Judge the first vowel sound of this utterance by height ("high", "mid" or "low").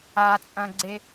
low